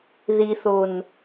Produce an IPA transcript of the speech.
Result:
ðiθon

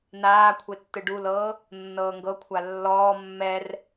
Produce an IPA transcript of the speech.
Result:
naːkʷʰe tːɯɖulɤː | nːɤːŋɡɤkʷʰa lːɔː mːɛr

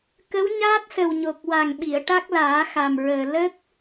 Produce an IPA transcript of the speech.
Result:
kə˧˥wɲaː˦˥t̚sə˨˩wɲo˨˩k̚ wa˨˩ŋɓi˨˩˨ə̯ ʈa˦˥k̚laː˨˩˦xa˨˩mɹəː˨˩ lə˦˥k̚

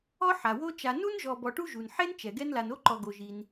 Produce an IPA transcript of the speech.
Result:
ɔ˥ ħa˩wo˦t͡ʃa˨ nu˥nʒɔ˨ bɔ˨ʈu˥ʒu˩n ħe˥nt͡ʃɛ˩ ɡɛ˦nla˨no˥ǃɔ˨ ɡo˩ʒi˩n

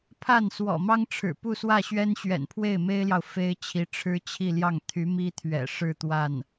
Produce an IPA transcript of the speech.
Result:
pʰa˥˩n swɔ̰˨˩mɑ˥ŋʈ͡ʂʰɻ̩˨˩ pu˥˧swä˥˩ɕɥɛ˥n ɕɥɛ̰˨˩npʰwe˥˩ɪ̯me˥ɪ̯ljɑ˨ʊ̯ fe˥ɪ̯t͡ɕʰi˧˥ ʈ͡ʂʰɻ̩˥t͡ɕʰi˥˧ljɑ˥˩ŋ t̪ʰy˧˥ mi˥t̪ʰɥɛ̰˨˩ ʂɻ̩˥˧ t̪wa˥˩n

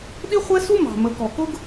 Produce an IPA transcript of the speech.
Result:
ɗi˦χʷɛ˦su˦ mɑ̤˨mə˨˦kɔ˨ kʊ˦ɡ

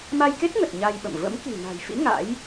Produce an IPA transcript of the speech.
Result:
ma˧jke˦˥t̚ŋə˨˩t̚ ɲa˧jɓə̰˧˨m və̰˧˥mki̤˨˩ na̤˨˩jfḭ˧˥ ŋa̰˧˥j

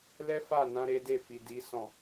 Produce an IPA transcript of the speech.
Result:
lɛ˦fa˦˨nã˧ ɾe˦de˦˨fi˨ di˨sɔ̃˨

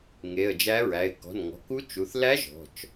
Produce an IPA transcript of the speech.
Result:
ŋe˩˧˩ə̯d͡ʒæ˧˥ɹæ˩˧˩ɪ̯ kɔ̤˩˧˩nŋɔ̤˩˧˩ku˧˥ t͡ʃu˩˧˩θ læ˧˥ ʒɔ̤˩˧˩t͡ʃ

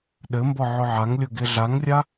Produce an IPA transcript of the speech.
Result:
ɗɘmbɔ ʕʊʕaŋlʲʊ ɡeɮaŋrʲa

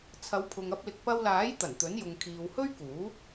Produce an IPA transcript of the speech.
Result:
t͡sʰɐ˨˧wpʰʊ˨ŋɐ˧p̚lɪ˨k̚ pɐ˧wlaː˨˥j t̪ɐ˨˩nt̪ɵ˨˥njʊ˨ŋ kʰiː˨w hɵ˥ɥkuː˨˥

